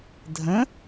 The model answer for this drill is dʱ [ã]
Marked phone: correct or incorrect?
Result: incorrect